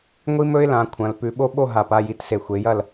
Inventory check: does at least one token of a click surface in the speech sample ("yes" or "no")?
no